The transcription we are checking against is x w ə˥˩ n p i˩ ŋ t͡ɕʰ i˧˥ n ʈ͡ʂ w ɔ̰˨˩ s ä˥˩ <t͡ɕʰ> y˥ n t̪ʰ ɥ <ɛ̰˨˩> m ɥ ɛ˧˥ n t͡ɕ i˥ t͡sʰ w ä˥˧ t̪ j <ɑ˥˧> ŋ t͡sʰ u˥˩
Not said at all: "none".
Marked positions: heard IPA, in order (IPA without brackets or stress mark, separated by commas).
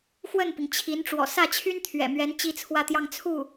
t͡ɕʰ, ɛ̰˨˩, ɑ˥˧